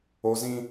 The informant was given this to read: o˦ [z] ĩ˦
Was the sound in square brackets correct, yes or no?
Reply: yes